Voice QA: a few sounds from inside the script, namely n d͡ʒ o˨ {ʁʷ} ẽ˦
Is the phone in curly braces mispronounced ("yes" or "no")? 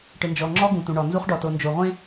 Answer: no